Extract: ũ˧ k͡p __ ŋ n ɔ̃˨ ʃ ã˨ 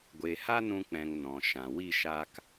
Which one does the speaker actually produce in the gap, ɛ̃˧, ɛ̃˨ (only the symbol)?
ɛ̃˨